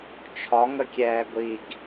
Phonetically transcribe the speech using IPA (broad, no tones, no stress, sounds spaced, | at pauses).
t͡ʃʰ ɒ ŋ ə kʲ ɛː ɡʷ i ɡ